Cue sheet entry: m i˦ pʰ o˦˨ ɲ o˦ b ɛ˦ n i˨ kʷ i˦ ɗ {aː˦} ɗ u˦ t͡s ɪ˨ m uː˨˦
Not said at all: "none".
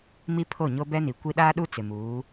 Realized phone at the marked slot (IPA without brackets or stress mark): aː˦